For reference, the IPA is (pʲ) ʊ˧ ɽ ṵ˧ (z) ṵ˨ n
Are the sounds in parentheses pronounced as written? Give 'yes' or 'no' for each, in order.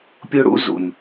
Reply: yes, yes

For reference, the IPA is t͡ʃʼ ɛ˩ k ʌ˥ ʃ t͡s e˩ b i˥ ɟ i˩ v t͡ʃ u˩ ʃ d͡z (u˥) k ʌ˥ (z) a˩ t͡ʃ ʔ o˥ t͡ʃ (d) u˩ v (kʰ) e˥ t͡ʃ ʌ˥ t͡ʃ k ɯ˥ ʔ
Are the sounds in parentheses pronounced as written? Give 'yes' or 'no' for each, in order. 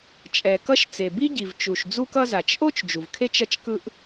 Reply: yes, yes, no, yes

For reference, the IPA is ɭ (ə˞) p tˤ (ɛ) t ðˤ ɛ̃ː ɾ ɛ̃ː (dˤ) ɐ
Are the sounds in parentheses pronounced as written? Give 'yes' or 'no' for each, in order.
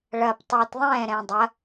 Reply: no, yes, yes

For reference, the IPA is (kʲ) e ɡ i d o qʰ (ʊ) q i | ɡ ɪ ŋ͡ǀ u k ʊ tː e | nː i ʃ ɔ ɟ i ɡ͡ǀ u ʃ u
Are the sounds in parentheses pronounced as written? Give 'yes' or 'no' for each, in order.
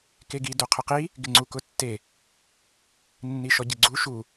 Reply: no, yes

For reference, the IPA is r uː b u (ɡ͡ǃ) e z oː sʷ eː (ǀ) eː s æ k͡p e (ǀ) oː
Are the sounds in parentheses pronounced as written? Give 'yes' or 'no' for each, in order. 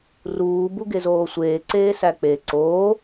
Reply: no, yes, yes

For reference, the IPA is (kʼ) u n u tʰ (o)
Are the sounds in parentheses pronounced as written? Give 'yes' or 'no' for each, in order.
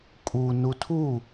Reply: yes, no

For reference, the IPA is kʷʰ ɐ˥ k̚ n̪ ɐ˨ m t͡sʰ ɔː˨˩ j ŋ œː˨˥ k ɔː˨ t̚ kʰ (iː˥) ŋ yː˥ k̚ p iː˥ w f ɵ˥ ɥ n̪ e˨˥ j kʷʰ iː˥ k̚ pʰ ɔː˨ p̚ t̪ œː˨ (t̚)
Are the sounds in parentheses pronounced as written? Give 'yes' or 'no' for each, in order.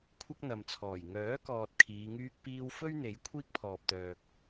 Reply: no, no

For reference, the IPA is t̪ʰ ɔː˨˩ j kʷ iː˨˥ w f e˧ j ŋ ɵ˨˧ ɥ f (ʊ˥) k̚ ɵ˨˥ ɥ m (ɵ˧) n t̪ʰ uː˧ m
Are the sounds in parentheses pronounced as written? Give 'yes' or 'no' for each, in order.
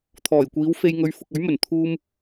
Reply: no, no

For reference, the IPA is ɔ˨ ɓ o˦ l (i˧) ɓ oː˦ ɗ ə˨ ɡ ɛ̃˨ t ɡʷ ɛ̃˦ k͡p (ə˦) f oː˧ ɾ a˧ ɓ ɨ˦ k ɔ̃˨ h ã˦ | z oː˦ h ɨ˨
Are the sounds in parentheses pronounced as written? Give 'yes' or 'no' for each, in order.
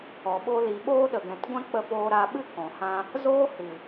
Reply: yes, no

